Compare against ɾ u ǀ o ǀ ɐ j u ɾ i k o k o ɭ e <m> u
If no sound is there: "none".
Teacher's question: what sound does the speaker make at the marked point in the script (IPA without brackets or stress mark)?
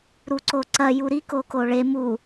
m